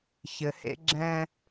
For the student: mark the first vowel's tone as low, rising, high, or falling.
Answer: low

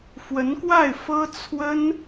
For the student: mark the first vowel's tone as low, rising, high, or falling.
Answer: rising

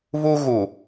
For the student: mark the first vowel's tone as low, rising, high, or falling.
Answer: high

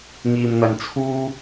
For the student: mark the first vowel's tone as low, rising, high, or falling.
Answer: low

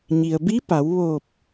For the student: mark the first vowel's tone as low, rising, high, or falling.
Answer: low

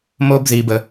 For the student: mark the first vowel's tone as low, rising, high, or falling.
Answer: high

